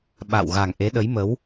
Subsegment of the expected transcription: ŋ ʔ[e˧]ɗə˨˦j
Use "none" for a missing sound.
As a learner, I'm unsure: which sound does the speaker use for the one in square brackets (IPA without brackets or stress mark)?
e˨˦